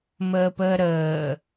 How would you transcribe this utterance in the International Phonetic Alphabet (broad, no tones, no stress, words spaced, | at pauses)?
məːpəːɾəː